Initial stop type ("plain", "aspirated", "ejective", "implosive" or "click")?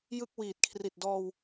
plain